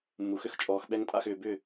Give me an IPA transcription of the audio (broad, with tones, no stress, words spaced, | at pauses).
mːu˩xʏ˥˩xt͡ʃʼɔː˩xɓɛ˧ŋ tʼa̰˥˩xʏː˩bʏ˥˩